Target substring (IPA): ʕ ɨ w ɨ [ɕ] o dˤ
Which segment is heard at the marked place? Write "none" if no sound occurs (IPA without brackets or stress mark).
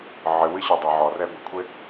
ɕ